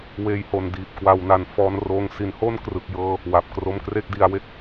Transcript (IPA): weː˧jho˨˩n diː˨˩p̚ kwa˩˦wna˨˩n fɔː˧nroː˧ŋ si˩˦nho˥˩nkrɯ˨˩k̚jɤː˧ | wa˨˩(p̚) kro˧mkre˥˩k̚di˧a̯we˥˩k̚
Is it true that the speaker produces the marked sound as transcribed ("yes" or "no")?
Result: yes